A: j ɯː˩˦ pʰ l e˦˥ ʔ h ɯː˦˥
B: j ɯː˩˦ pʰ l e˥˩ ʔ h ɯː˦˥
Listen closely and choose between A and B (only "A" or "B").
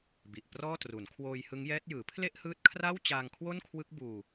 B